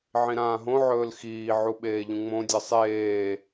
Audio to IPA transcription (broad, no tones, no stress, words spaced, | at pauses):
ʕĩɾãːɦõ ʕɵːlxiː ʕuɓeːʎũŋ͡mõ dʲɐsˤeː